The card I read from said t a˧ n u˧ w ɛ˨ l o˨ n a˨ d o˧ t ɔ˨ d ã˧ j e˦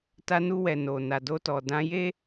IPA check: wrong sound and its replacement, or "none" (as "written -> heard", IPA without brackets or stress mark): l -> n